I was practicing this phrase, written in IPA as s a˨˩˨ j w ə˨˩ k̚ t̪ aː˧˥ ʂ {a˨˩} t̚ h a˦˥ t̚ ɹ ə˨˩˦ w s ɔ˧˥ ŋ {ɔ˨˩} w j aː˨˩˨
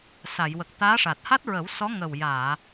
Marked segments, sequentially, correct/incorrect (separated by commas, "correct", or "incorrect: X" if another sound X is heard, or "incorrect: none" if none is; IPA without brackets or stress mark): correct, incorrect: ə˨˩